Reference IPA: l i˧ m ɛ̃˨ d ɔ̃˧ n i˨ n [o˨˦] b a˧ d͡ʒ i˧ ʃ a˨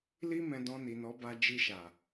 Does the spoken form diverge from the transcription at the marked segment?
yes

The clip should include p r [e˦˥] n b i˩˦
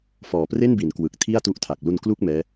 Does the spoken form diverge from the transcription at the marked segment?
yes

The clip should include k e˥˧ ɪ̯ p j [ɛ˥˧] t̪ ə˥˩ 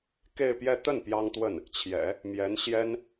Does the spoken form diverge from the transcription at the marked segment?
no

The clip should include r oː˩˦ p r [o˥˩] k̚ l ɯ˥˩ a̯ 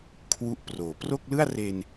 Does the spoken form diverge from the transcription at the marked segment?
no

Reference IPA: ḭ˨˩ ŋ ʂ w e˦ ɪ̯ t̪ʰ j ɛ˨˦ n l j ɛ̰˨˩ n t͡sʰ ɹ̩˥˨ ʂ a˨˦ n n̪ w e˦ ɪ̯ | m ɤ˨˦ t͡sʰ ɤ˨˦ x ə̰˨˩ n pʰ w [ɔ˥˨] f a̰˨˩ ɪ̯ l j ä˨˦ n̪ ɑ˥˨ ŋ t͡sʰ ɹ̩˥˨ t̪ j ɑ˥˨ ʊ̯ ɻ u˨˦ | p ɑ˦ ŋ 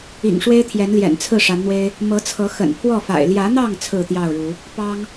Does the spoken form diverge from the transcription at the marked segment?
no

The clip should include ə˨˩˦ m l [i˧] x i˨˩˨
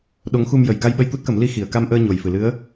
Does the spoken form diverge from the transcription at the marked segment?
no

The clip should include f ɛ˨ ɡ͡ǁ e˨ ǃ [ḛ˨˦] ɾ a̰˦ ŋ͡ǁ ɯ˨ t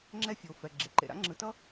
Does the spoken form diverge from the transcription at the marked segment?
yes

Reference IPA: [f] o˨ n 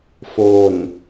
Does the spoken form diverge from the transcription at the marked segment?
no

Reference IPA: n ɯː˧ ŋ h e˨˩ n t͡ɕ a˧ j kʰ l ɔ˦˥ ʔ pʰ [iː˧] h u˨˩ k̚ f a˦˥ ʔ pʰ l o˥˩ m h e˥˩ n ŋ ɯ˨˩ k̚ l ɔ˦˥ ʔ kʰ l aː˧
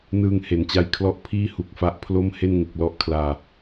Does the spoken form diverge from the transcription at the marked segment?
yes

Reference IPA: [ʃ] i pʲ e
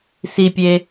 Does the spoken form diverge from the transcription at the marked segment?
yes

